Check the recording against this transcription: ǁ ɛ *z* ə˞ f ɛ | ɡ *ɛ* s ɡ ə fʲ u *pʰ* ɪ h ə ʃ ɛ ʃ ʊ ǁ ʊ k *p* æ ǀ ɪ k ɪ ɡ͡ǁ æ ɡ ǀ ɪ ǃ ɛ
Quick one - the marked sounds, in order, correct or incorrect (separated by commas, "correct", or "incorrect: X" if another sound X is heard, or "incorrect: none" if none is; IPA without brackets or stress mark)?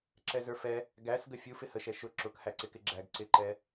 correct, incorrect: æ, incorrect: f, incorrect: h